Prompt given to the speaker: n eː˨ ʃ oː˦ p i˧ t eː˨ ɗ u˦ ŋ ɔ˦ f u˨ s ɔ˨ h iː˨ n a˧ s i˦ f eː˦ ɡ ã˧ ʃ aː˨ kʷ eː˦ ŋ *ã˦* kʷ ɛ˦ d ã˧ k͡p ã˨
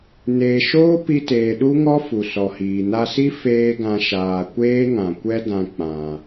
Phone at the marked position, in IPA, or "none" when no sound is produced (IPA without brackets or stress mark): ã˨